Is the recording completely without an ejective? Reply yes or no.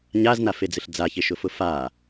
yes